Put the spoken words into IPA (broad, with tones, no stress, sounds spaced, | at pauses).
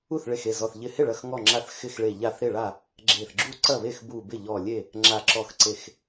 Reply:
u˥˩ θ ɭ e˧˩ x e˥˩ z ɔ˧˩ θ ʎ ɪ˧˩ h ɪ˥˩ ɭ ɐ˧˩ x ŋ ɔ˧˩ ŋ͡ǁ a˧˩ θ x ɪ˥˩ x ɭ e˧˩ ʎ a˥˩ θ ɾ ɪ˥˩ ɭ a˥˩ | ɡ͡ǁ e˧˩ θ ɡ͡ǁ u˥˩ ǀ ɐ˥˩ β e˥˩ x b u˧˩ b ɪ˥˩ ʎ ɔ˧˩ lʲ e˥˩ | ŋ͡ǁ a˧˩ ǁ ɔ˧˩ x ǀ e˧˩ x